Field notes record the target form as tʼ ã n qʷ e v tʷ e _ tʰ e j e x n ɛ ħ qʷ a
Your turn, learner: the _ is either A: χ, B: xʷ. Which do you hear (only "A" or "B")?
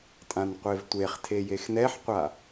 A